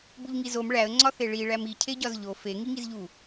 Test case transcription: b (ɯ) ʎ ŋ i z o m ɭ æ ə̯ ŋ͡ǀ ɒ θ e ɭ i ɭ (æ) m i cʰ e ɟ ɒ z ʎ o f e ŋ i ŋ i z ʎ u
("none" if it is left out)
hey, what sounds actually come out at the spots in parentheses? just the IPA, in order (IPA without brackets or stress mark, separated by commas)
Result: u, æ